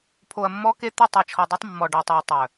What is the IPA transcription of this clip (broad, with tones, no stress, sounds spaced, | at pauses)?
pʰ o˨ ɐ̯ mː ɔ˦ k e˦ t̪ ʉ˦˨ tˤ i˨ t͡ʃʰ ɔ˨ dˤ ʉ˦ tˤ mː ɔ˨ ɖ ɔ˨ tˤ u˨ ɐ̯ tˤ œ˨